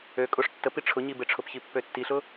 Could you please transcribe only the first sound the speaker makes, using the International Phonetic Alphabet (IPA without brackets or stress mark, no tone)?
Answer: ø